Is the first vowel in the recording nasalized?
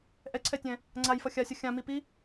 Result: no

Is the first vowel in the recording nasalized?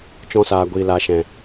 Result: yes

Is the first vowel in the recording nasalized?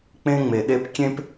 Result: yes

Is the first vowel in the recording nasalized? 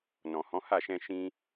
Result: yes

